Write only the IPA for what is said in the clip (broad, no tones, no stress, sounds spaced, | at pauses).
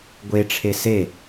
ɡʷ e ʈ͡ʂʰ e s e